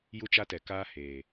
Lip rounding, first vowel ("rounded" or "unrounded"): rounded